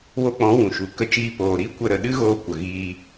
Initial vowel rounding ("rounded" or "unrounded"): rounded